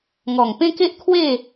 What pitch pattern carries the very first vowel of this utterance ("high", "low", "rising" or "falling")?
low